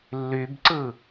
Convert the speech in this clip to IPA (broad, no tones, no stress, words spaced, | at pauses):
lːybǀɯ